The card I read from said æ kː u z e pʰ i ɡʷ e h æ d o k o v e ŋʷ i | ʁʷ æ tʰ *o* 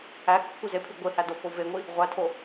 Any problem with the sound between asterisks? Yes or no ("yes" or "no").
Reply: no